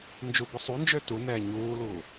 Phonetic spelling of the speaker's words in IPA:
n d͡ʒ u b ʊ sˤ u n d͡ʒ ø t u n ɛː ɲ uː l uː

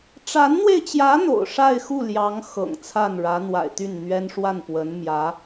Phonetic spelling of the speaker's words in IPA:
ʈ͡ʂ a˧˥ n n̪ w e˧ ɪ̯ t͡ɕ j ä˧˥ n̪ o̰˨˩ ʊ̯ ʂ a˥˧ ɪ̯ x u˥˩ l j ɑ˧˥ ŋ x ɤ̰˨˩ ŋ t͡sʰ a˥˩ n ɻ ä˧˥ n̪ w a̰˨˩ ɪ̯ t̪ y˥˩ n n̪ ɥ ɛ˥ n ʂ w a˥˩ n p w ə˧˥ n m j ä˧˥

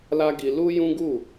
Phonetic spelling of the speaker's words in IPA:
l a˦ ɡ i˧ l u˦ j ũ˦ ɡ u˦˨

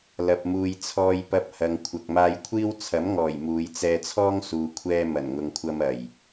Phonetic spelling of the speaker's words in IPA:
l ɐ˨ p̚ m uː˨ j t͡sʰ ɔː˧ j p ɐ˧ p̚ h ɐ˨ ŋ kʷʰ ɐ˨ k̚ m aː˧ j kʷʰ iː˥ w t͡sʰ ɐ˨˥ m ŋ ɔː˨˩ j m uː˨˧ j t͡s ɛː˧ t͡sʰ ɔː˥ ŋ s uː˨ kʷʰ ɛː˧ m ɐ˨˩ n ŋ ʊ˨ ŋ kʷʰ ɐ˧ m ɐ˨˩ j

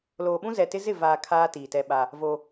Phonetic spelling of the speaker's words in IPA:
l oː˨ ɓ ũ˦ z ɛ˨ t ɪ˦ z ɪ˦˨ v aː˨ kʰ aː˦ t iː˨ t ɛ˦ ɓ a˦ | v o˦

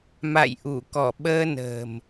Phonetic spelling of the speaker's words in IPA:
m a̰˧˨ j ʔ u˧˩ k ɔ˧˩ ɓ əː˧ n ə̤ː˨˩ m

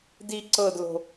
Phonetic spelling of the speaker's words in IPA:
d i ǀ ɤ d l o̤

